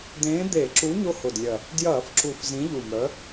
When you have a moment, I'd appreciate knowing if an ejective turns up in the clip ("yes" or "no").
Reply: no